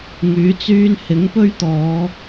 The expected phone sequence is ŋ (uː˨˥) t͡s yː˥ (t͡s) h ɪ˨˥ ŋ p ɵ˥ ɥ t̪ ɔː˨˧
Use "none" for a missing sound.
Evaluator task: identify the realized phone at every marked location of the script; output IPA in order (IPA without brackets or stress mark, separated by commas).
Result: yː˨˥, n